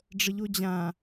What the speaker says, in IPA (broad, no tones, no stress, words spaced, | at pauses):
ɖ͡ʐəʎod͡ʑã